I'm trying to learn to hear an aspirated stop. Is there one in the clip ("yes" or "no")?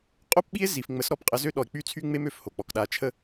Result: yes